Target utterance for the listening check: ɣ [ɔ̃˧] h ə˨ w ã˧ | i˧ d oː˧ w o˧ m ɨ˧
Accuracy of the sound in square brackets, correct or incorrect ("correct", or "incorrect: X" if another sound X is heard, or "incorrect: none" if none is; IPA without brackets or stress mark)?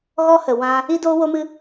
incorrect: ɔ˧